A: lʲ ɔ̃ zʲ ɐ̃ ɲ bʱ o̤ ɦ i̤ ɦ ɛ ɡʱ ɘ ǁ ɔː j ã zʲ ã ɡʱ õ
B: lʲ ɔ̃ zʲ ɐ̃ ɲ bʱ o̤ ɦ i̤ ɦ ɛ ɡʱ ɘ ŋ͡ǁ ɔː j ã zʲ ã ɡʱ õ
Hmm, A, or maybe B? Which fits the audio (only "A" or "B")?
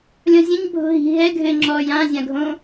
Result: B